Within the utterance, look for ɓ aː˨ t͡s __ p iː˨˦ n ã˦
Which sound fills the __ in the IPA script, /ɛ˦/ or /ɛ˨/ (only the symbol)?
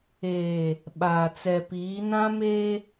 ɛ˨